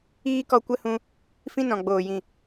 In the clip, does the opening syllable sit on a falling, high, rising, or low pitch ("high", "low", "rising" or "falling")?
high